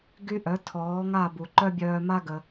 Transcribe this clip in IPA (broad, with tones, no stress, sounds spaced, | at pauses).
ɡ y˦ ʔ œ˨˦ tʰ ɔː˨˦ ŋ a˦˨ b u˨ ǃ œ˦ bʲ œː˧ m a˦ ɡ ə˧